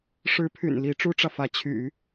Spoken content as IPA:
ʂ ɻ̩˧˥ pʰ y̰˨˩ n l i˧˥ ʈ͡ʂ u˥ ʈ͡ʂ ä˨ f ä˧˥ t͡ɕʰ y̰˨˩˦

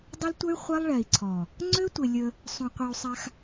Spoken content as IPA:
dˤ ə˦ l tʷ ə˦ y̯ χʷ ɛ˦ lˠ ɭ ɛ˨ i̯ ǀʰ ɔ˨ | ŋ͡ǀ ø˦ tʷ e˨ lʲ ə˦ | sˤ ũ˨ qʷ i˨ u̯ sˤ a˦ x

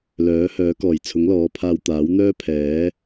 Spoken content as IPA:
l œː˨˥ h œː˨˥ k ɔː˨˩ j t͡sʰ ʊ˨˥ ŋ l ɔː˨˥ pʰ aː˧ w t̪ aː˨˥ w n̪ œː˥ pʰ ɛː˨˥

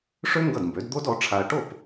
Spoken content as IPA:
ʂ ø˥ ŋ ɡ ʌ˥˩ d m b ø˩˥ d d̪ o˥ d ɔ˩˥ ʈ͡ʂʰ a˧ ɐ̯ ʈ o˥˩ p

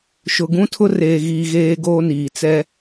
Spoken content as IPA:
ʃ ʊ˨ ɡ ũ˦ tʰ ʊ˦ r eː˨ ɣ iː˨ ɣ eː˦ ɡ oː˦ n iː˨ t͡s ɛ˦

